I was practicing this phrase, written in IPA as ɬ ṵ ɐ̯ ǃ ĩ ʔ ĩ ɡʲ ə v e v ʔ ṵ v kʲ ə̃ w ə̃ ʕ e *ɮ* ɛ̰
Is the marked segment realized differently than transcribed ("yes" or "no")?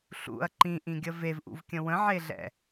no